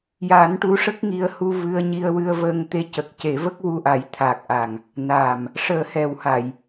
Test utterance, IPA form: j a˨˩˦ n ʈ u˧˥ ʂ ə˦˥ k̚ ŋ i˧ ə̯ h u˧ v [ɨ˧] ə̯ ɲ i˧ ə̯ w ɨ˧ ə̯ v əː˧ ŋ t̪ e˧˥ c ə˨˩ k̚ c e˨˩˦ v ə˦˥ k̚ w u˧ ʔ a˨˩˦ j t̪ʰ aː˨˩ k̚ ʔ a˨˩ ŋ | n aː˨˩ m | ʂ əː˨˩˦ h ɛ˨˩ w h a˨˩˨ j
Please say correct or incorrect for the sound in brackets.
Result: correct